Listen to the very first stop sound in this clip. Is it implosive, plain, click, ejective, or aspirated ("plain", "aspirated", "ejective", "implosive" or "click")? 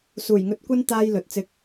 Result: plain